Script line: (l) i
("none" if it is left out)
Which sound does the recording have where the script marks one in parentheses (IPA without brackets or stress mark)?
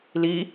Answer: l